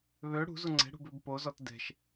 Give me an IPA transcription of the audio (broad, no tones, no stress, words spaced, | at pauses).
βø ɽṳzu ŋ͡ǀɛ̤ɽṳbøb pozɔt dɛ̤ʃ